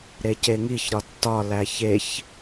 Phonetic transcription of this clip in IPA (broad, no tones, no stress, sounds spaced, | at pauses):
ɾ e c e ŋ i ç ɾ ɒ tː ɒ l æ ç e ç